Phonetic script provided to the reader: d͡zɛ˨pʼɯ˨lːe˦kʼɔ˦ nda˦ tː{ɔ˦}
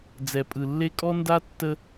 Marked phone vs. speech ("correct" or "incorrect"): incorrect